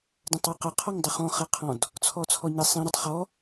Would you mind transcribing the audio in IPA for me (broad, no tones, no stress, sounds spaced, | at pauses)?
d ɛ̃ tˤ ɛ q ə qʰ ɔ ŋ dˤ ʊ χ ɔ̃ χ ɛ qʰ ɔ̃ d | t͡sʰ ɔ t͡sʰ ɔ ɲ ɛ sˤ ĩ ɾ ə tˤ χ ɔ